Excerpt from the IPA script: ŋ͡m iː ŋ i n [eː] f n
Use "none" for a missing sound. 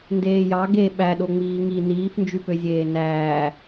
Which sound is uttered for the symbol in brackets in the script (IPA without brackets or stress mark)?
iː